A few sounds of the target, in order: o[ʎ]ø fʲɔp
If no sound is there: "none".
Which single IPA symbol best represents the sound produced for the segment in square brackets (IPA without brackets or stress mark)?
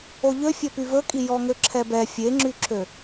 ʎ